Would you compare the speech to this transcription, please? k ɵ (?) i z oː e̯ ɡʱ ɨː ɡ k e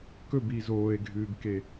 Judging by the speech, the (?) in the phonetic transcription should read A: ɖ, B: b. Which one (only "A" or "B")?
B